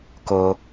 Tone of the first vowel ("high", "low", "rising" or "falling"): low